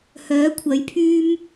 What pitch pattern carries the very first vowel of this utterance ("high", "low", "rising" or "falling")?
rising